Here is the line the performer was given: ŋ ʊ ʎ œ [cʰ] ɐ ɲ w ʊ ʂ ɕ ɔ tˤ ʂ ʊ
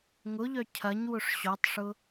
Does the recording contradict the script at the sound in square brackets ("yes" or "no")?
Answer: no